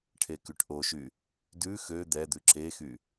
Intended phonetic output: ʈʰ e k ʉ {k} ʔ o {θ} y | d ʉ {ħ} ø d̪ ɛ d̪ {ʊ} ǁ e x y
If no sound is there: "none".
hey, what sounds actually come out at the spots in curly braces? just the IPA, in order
ʈ, ʃ, x, ʉ

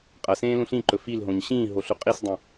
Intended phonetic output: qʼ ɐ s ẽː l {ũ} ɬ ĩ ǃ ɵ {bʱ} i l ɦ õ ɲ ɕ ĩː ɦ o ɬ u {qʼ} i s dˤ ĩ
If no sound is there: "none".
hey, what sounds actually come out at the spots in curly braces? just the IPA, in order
ũ, f, qʼ

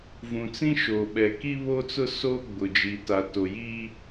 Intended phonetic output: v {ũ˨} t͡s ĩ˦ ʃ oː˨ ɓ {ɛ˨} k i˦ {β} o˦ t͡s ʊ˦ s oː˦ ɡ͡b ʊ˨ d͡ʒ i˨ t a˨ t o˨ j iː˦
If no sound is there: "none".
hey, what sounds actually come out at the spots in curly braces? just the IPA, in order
ũ˨, ɛ˨, β

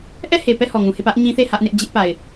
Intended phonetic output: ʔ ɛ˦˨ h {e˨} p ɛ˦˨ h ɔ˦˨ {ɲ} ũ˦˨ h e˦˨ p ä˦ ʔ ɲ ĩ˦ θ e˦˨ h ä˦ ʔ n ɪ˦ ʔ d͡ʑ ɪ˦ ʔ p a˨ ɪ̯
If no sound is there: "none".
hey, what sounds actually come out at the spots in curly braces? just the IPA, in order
e˨, ŋ

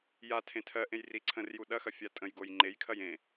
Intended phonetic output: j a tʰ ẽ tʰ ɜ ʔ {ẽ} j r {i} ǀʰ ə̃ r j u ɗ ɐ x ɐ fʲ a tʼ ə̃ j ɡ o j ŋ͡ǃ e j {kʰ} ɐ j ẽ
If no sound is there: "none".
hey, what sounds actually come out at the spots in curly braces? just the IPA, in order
ẽ, i, kʰ

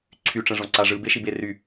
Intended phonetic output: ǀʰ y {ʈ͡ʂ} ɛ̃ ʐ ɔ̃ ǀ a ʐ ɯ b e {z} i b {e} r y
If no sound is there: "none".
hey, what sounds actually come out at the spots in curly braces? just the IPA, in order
ʈ͡ʂ, ʃ, e

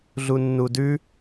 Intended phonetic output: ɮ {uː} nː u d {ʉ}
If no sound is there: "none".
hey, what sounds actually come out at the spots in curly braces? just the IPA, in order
u, ʉ

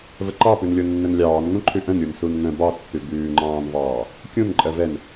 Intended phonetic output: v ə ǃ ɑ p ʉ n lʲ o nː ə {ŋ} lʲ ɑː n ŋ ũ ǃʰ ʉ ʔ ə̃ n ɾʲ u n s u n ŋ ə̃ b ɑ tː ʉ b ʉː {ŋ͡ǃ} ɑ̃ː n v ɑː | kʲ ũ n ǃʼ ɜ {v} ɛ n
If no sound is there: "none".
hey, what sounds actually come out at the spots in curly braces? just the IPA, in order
n, ŋ͡ǃ, v

